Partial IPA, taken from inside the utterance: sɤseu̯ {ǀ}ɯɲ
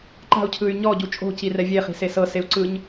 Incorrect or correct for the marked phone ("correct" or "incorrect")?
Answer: correct